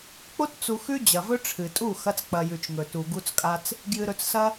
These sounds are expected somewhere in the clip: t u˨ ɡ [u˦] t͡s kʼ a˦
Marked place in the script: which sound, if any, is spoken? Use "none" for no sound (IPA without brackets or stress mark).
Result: u˦